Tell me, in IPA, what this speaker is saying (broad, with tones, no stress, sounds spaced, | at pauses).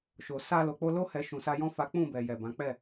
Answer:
ʃ o˨ s a˧ l o˨ k͡p o˧ l o˦ h ɛ˧ ʃ ũ˨ s a˧ j ɔ̃˦ f a˦ k͡p ũ˦˨ b ɛ˨ j ɛ˨ b ã˨˦ k͡p ɛ˦˨